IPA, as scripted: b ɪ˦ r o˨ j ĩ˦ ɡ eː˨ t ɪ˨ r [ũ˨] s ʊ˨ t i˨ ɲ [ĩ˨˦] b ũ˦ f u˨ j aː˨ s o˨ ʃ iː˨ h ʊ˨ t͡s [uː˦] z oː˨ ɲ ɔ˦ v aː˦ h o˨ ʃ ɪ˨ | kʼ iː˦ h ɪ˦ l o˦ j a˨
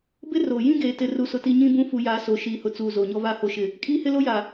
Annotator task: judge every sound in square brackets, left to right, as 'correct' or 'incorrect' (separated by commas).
incorrect, incorrect, incorrect